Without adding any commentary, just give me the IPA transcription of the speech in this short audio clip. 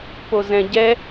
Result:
p o z ɛ̃ ɟ ɛ

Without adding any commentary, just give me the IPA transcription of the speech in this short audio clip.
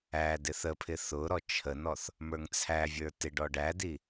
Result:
æ d ɪ θ ə pʰ ɪ θ ʊ ɾ ɔ t͡ʃʰ ə n ɔ θ | m ə˞ ŋ t͡sʰ æ vʲ ə˞ t ɪ ɖ ɔ ɖ æ d i

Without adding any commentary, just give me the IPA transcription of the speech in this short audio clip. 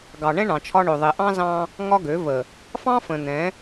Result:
ɡ ɑ˨ ɳ ɛ̃˦ ɳ ɑ̃˨ t͡ʃʰ ɒ˦ ɳ ø˨ ðˤ e˨ ʔ ɑ̃˦ z ɑ̃˦ | ŋ ɒ˦ ɡ ø˨˦ v ə˨ | f ɑ̃˦ f ə̃˨ n̪ ɛ̃˨˦

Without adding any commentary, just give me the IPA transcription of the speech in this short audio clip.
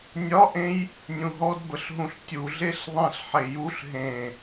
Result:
nʲ ɒ ʔ ẽ j | nʲ ũ ɦ ɔ d b ə ɬ ɦ ũ ɬ tʲ u ɮ e ɬ ðˤ ẽ ɬ ħ e j u ɬ ɦ ẽ

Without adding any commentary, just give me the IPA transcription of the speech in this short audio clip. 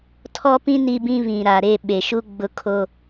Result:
tʰ ɔ˦ p ĩ˦ n i˦ b ĩ˦ β ĩ˨ ɾ a˨ ɾ e˦˨ ɓ e˨ ʃ u˦ ɡ͡b ʊ˨˦ kʰ o˨

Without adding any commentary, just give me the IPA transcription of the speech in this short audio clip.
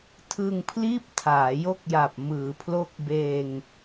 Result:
tʰ ɯ˧ ŋ pʰ l iː˥˩ p̚ tʰ aː˩˦ j o˥˩ k̚ j a˨˩ p̚ m ɯː˩˦ pʰ l o˦˥ k̚ b eː˧ ŋ

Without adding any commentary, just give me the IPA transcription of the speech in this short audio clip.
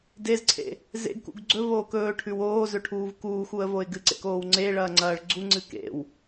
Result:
d e z ǀʰ ḛ | z ḛ ɡ k ṵ ɡ ɡ͡ǀ ɵ v oː k ɵː ʈʰ ʉ w oː z ɵ ʈʰ uː v k uː x u ə̯ v o ɪ̯ ɡ ɨ ǀ ḛ k oː w ŋ͡ǀ e ɭ ɐː ŋ͡ǀ ɐː ɭ ɡ͡ǀ u ŋ͡ǀ ɨ k ḛ w

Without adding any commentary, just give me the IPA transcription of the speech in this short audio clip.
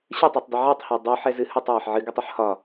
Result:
ɕ ɯ tˤ e tˤ dˤ ɛ ʕ ɯ tˤ h ɒ dˤ u ħ ɛ z ɨ h ɯ tˤ j ɒ ħ ʕ ɨ ɡ ɔ tˤ ɯ ħ h ɒ

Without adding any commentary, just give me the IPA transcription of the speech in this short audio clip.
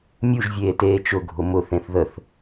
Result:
mʲ u ʒ vʲ eː t eː t͡ʃ ʊ ɡʱ ʊ m ʊ θ ẽ θ ð ə θ

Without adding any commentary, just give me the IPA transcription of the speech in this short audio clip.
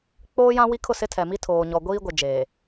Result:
k͡p oː˦ j ã˦ w i˦ kʰ ʊ˦˨ s ɪ˦ tʰ ɛ˨ m i˦ tʰ oː˨ ɲ ɔ˨ ɡʷ iː˦ ɡʷ ɪ˨ d͡ʒ eː˨

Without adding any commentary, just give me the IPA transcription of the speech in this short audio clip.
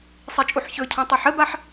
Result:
sˤ i t͡ʃʼ u ħ ç ɵ cʰ ã tˤ ø ħ ə b a ħ

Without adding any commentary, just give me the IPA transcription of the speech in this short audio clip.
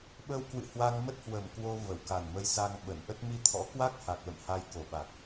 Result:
ɓ ə˧ w k w ɨ̰˧˨ h w a˧ ŋ m ə˦˥ t̚ h w ə˨˩ m k w o˧ v ə˧˩ w k a˨˩ n m ə˧ j s a˧ ŋ ɓ ə˧˩ n ʔ ə˦˥ t̚ m i˧ t̪ʰ ɔ̰˧˥ k w a˦˥ k̚ h a˨˩ k̚ l ə̰˧˨ m h a˧ j k o˨˩ ɓ a˨˩ k̚

